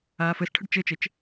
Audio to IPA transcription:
aː f ɘ s ʈʰ ə ɖ t͡ʃ ɘ t͡ʃ ɘ t͡ʃ

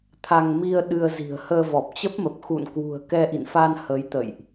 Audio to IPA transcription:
t̪ʰ a˧ ŋ m i˧ ə̯ ɗ ɨ˧ ə̯ z i̤˨˩ ə̯ h əː˧ v ɔ˨˩ p̚ t͡ɕ ə˦˥ p̚ m ə˨˩ p̚ x ṵ˧˨ n k w ṳ˨˩ ə̯ k ɛ˧ ʔ ḭ˧˨ n f a˧ n h ə˨˦ j t̪ ə̰˧˨ j ʔ

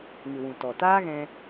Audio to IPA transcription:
ŋ ɨ˨ w ũ˨ t ɔ˨ t aː˦ ɣ ɛ̃˧

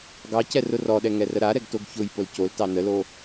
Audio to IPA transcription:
ɡ ɑ c ɛ r ʊ r ɔ ɗ ɛ ŋ ɛ r ə ɾ a ɾ ɛ ɡ t o ɡ ç ʊ j p ʊ l c o l t ɑ n ə l o

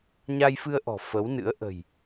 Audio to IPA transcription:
ɲ a˧ j f ɨ˧ ə̯ ʔ ɔ̤˨˩ f ə˨˦ w n ɨ̰˧˥ ə̯ ʔ ə̤˨˩ j

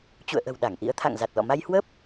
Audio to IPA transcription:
t͡ɕ ṵ˧˨ ə̯ ʔ ə̤˨˩ w ɗ a˧˩ ŋ ʔ ḭ˧˥ ə̯ t̪ʰ a̰˧˨ ŋ z a˨˩ t̚ l ɔ̰˧˨ m a˧ j h w ə˦˥ p̚

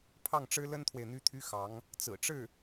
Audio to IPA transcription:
pʰ ɑ˥˩ ŋ ʈ͡ʂ ɻ̩˥ l ə˥ n t̪ʰ w e˨ ɪ̯ n̪ y˥ t̪ʰ y˥ x ɑ˧˥ ŋ | t͡s ɹ̩˨˩ ʈ͡ʂ ɻ̩˥˩

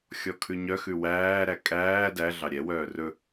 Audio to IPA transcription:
xʲ ɔ kʰ ʉ ɲ œ x ʉ w æː ɾ æ kʼ æː d æ ɮ ɑ ɾʲ ɛ w œː r ɵ

